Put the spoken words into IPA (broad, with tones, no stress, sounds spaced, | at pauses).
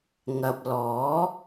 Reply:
ŋ ɐ˨ p̚ l ɔː˨˥